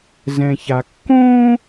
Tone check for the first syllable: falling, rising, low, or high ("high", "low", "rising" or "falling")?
low